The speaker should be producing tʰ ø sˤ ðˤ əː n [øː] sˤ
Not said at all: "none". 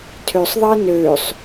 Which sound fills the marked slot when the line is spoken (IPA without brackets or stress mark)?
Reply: øː